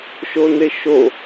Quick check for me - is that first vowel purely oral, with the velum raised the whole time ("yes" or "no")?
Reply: yes